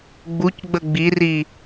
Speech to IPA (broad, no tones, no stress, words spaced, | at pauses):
ɡ͡bucɡ͡bə ɡ͡biri